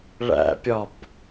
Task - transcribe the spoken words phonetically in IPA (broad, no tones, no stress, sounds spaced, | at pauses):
ɭ æ̰ pʲ ɒ b